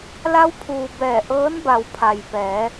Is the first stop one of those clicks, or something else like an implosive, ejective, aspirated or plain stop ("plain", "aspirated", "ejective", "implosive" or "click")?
aspirated